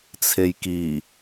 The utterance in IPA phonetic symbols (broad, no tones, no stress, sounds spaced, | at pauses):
t͡sʰ e j k i